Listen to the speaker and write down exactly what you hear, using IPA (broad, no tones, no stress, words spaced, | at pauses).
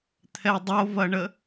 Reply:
t̪ʰɛdˤovɐɳə